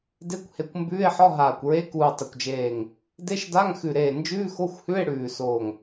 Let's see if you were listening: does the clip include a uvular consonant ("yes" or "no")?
no